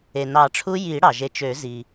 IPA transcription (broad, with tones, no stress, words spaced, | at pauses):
e˩nɑ˨˩˦ʈ͡ʂʰu˦˥ ji˨˩˦ ɽɑ˩ʒe˨˦ t͡ʃø˨˩˦ zi˩